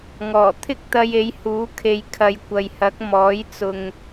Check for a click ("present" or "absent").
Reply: absent